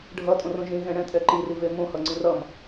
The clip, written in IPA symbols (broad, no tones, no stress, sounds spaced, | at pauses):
ɖʱ ʌ tʼ õ r õ ʒ ĩ ɣ ɛ̃ ɽ ɛ̃ tʼ ɛ ǃ i r i v e m õ h ʌ ŋ͡ǀ ĩ r ʌ m